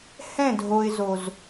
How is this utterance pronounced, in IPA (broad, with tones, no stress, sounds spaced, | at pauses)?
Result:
h ɛ̃˦˨ dʱ o˨ ɪ̯ z o˨ z